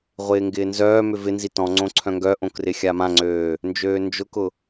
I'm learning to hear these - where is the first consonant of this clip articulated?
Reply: uvula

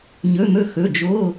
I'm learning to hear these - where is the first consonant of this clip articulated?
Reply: palate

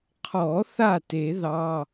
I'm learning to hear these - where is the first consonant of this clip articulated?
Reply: uvula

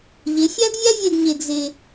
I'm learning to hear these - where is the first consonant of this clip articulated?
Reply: palate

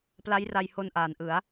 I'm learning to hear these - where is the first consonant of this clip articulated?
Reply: lips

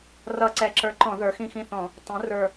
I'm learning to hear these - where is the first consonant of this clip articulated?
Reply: tongue tip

